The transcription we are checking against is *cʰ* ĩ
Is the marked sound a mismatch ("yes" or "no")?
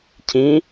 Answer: no